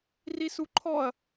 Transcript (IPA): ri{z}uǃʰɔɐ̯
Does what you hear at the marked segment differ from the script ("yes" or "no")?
yes